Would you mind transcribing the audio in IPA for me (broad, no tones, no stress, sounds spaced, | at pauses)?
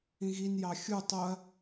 ĩ ɣ i n j ɑ xʲ u tˤ o ɐ̯